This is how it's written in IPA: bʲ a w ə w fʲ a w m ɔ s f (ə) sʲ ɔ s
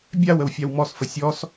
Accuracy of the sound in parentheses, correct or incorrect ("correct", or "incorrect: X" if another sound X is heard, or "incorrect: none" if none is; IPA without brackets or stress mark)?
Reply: correct